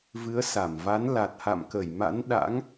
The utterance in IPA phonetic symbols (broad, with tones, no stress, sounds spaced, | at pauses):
v ɨ˨˦ ə̯ s a˧˩ m v a˨˦ n l a˨˩ t̚ h a̰˧˨ m k ə˧˩ j m a̰˧˥ n ɗ a̰˧˥ ŋ